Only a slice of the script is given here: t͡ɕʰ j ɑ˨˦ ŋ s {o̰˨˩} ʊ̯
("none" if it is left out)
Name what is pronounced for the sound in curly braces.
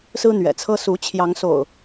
o̰˨˩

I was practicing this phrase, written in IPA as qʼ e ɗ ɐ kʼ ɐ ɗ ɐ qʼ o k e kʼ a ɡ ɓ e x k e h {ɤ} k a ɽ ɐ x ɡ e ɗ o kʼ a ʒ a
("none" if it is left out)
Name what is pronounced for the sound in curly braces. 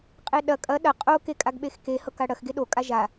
ɤ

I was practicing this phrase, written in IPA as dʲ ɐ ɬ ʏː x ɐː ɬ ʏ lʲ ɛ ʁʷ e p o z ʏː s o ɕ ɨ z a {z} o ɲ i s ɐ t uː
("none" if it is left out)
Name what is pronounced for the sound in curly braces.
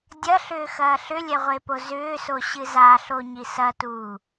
ɬ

